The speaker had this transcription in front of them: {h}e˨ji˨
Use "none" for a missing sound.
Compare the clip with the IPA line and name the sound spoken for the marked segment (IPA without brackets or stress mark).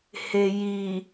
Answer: h